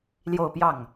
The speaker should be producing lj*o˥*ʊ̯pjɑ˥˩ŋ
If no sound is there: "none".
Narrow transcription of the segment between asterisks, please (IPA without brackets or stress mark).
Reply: o˥˧